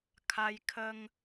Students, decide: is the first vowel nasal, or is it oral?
oral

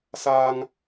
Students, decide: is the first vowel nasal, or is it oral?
oral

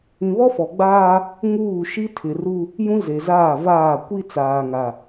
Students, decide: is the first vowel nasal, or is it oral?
nasal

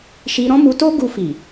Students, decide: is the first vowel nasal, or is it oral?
oral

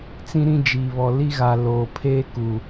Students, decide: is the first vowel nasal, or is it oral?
nasal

